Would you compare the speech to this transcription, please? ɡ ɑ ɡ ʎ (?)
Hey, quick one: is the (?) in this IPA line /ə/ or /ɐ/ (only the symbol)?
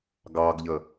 ə